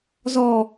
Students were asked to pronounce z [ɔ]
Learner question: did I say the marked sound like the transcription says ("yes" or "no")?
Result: yes